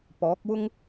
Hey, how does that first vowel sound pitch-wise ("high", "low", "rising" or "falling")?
rising